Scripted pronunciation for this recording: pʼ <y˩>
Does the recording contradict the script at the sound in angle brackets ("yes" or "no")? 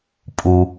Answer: yes